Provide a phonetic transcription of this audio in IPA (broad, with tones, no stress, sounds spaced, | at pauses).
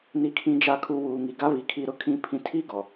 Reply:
n i˨ kʰ ĩ˨ d͡ʒ a˨ kʰ u˨ w uː˨ ŋ i˨ ɡ a˦ β i˨ kʰ i˦ ɾ ʊ˦ kʰ ĩ˦ pʰ ĩ˦ tʰ i˦ ɡ ɔ˨